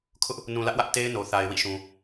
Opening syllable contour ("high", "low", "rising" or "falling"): high